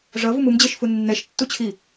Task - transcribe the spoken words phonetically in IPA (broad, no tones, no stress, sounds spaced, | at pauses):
ʐ ʌ v u m u m d͡ʑ e ʃ f u nː ɛ ʃ tː u t͡ɕʰ i